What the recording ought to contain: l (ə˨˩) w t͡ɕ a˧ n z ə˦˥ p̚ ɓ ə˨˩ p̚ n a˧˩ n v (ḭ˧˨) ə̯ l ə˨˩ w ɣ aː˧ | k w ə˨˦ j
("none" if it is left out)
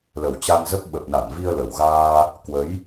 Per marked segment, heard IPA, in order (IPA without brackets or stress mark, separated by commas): ə˨˩, i˧